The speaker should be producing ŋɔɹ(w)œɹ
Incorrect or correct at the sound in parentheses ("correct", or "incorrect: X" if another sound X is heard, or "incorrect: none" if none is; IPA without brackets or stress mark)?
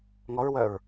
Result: correct